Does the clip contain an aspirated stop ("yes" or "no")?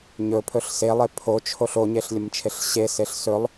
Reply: yes